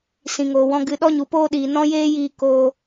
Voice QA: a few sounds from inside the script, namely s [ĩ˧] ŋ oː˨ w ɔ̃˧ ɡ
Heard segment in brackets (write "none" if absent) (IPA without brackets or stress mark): ĩ˨